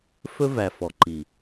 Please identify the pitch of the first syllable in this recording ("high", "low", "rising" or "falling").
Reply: high